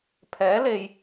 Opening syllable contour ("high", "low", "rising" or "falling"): rising